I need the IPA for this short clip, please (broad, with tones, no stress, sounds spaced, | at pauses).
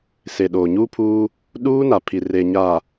s e˨ ɗ oː˨ ɲ uː˦ pʰ uː˦ | ɗ uː˦ n a˨ pʰ i˨ r e˨ ɲ a˨